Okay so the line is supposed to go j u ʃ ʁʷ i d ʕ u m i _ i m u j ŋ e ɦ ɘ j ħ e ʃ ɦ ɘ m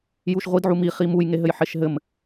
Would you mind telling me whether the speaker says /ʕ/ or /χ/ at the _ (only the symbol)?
χ